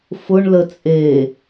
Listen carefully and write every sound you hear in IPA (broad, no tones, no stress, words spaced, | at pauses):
fʊɳ lət͡sʼe